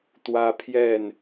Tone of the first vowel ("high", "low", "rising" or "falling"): high